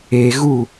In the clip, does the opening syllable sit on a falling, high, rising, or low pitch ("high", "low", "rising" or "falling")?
low